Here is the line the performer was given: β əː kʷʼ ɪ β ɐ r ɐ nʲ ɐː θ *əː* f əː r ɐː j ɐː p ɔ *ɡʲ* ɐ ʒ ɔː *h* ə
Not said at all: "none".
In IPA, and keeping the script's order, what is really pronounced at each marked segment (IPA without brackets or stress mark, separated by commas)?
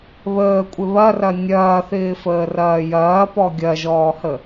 ɪː, ɡʲ, h